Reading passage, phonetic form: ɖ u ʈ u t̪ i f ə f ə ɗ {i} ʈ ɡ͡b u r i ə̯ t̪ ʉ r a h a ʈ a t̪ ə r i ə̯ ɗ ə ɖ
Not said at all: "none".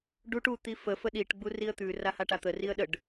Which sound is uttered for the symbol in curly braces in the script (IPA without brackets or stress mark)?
i